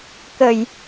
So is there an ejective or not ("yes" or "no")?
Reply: no